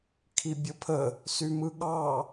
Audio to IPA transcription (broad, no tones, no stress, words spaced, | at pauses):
kʰibʲəpʰə | symɯɠɑ